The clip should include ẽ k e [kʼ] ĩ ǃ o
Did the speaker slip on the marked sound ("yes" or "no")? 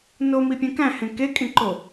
no